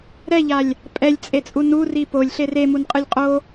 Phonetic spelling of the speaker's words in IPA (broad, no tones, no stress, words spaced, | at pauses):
ɾɛʎalʲ | pʼɛlʲt͡sʼet͡sʼu nuri polʲɬer emunqʼɯlʲ qʼo